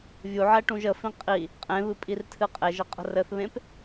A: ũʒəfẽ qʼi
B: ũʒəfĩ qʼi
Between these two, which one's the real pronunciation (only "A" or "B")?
B